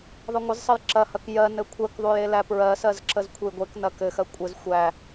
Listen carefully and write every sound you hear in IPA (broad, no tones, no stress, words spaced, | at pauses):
ðˤɘŋʷəzsˤəj ǁɐhɐk jɜ nɘkʷʰɜkðˤuj elæpɹɜsɜz ǁəzkʷʰəjɡʷeknɐ kɘxɜ kʷʼɘz xʷæ